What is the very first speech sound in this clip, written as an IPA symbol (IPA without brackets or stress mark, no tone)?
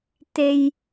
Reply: t̪